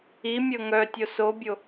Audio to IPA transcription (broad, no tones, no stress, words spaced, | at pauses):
imʲɤ ŋœ tʲosobʲo